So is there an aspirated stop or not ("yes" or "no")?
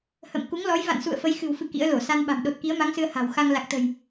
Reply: no